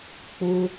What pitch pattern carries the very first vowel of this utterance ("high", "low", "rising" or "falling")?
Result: high